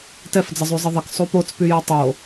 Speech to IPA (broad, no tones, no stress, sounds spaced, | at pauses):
t ɛ f d͡z ə zˤ y zˤ ə ðˤ ə k sˤ u p o t͡s p y j ɛ tˤ o